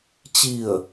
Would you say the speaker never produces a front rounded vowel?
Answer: yes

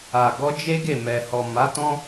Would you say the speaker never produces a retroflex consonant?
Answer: yes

